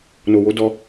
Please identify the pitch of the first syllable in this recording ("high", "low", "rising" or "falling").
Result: low